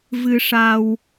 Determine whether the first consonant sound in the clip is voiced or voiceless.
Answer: voiced